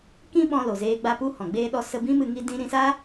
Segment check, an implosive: present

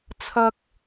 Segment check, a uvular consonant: absent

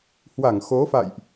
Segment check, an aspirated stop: absent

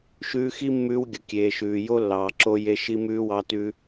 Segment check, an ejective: absent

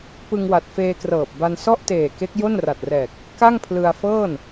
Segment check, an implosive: absent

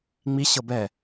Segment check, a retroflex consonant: absent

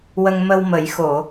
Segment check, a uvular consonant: absent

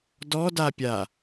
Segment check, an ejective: absent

